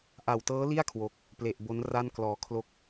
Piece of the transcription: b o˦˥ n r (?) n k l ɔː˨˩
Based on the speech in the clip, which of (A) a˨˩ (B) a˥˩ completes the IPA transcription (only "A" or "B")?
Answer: B